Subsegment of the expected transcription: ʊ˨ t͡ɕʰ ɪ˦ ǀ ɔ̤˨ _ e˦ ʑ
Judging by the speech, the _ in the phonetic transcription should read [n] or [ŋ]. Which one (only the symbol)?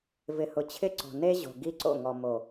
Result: n